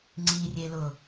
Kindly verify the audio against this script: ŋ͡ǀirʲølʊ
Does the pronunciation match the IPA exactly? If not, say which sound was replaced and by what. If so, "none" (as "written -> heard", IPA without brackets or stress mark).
ø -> e